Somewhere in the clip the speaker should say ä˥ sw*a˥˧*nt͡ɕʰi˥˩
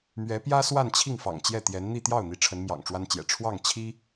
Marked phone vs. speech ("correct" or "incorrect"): correct